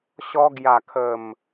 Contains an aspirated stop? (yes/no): yes